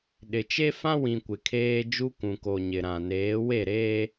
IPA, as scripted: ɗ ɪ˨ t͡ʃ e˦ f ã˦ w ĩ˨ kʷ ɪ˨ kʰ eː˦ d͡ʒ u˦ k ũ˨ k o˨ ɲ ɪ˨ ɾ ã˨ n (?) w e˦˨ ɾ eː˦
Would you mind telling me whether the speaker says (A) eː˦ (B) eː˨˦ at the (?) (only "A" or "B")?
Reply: B